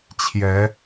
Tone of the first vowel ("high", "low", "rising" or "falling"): rising